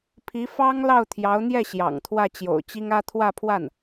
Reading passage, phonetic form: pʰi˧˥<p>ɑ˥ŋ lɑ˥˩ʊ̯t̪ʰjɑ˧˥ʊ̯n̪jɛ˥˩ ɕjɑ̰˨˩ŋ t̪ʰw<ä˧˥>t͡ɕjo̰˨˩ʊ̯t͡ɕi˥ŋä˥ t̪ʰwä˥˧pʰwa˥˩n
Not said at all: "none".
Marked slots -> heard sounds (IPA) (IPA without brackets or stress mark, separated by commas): f, ä˥˩